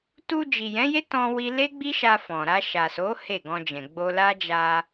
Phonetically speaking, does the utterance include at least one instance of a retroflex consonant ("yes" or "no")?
no